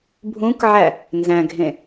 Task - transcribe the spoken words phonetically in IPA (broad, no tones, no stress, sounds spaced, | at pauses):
bʱ ũ k ʕ æ | n z æ̃ ɡʱ ẽ